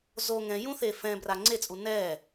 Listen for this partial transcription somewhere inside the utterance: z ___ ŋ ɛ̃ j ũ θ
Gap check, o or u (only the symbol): o